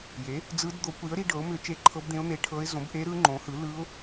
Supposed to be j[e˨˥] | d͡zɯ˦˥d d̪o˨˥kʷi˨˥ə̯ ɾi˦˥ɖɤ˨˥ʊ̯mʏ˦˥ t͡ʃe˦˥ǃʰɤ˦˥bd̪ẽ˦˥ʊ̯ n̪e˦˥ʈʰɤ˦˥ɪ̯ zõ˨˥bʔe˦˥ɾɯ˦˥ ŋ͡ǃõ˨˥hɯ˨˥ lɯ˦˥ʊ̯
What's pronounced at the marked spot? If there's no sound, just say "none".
e˨˥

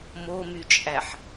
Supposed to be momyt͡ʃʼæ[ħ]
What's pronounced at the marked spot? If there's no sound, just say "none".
ħ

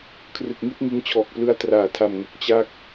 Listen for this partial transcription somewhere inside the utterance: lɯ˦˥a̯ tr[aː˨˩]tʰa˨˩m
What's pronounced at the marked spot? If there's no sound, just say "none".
aː˨˩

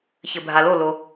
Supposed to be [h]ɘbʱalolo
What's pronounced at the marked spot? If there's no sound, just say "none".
ç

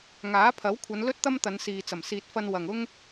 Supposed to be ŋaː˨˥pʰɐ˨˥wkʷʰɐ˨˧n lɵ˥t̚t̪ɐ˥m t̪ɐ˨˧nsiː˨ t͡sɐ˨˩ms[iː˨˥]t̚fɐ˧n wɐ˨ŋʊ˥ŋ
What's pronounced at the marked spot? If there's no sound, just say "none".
iː˨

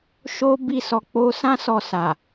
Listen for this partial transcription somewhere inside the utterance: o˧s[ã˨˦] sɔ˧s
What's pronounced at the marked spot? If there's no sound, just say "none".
ã˦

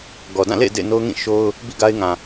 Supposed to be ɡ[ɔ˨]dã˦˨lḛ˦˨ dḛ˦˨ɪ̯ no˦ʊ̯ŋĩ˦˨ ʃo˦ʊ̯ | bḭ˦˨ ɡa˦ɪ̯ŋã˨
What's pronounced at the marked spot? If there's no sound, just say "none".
ɔ˨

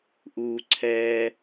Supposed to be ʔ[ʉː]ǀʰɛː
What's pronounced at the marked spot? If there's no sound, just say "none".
uː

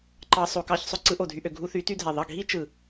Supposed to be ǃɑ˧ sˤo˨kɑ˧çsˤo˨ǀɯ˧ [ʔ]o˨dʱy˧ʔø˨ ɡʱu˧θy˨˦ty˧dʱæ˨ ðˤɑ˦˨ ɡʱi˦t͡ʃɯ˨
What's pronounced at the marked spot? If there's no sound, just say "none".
ʔ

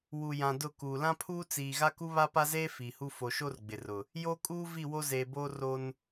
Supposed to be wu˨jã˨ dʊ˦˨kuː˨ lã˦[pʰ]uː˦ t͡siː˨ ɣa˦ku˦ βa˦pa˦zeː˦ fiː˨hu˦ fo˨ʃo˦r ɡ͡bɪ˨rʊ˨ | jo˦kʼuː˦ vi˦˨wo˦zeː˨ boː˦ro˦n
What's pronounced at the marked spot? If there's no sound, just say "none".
pʰ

